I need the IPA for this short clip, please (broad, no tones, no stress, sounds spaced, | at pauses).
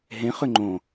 ɦ ẽ χ ʏ ŋ͡ǃ õ